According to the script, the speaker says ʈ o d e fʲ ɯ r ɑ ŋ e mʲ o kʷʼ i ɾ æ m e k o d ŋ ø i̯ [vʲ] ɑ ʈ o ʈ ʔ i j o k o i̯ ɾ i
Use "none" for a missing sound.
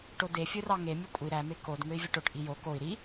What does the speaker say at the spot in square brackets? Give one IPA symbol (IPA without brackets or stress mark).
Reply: vʲ